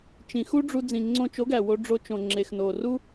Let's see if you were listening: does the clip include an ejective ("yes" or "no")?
no